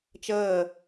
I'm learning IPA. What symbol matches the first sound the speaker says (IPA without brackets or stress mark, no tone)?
t͡ʃ